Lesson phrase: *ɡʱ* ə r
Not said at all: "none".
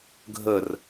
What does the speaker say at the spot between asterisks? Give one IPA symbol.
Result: ɡʱ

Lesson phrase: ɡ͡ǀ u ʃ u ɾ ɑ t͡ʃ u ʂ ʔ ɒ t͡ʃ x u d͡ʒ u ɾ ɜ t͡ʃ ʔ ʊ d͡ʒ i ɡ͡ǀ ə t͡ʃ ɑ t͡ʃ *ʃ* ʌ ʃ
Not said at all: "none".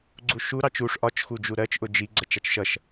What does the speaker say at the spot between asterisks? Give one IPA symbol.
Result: ʃ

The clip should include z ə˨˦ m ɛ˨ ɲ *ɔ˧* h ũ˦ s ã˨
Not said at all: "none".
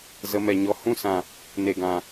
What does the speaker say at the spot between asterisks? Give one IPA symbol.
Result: ɔ˧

